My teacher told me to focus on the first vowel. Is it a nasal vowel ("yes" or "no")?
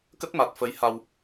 no